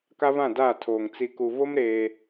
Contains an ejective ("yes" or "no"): no